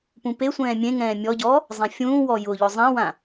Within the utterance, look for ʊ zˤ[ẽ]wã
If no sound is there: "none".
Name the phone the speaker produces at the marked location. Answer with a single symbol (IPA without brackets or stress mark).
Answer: ɛ̃